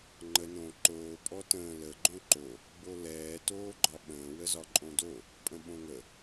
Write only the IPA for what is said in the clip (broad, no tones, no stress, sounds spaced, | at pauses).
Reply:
ŋ͡ǃ ə n õ ǃ oː pʼ ɔ t ə̃ː l ə ɡ͡ǃ õ ǃ o | b o l ɛː t oː ɡ͡ǃ ɒ ɓ ə̃ː w ə z ɒ ǃʼ õ d o | pʼ ə̃ ɓ õ ŋ ə